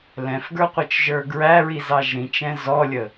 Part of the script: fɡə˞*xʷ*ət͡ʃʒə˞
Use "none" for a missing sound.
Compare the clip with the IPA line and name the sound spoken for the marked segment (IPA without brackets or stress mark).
qʷ